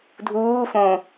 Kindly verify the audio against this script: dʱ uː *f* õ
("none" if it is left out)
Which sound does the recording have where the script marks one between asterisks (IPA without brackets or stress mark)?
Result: f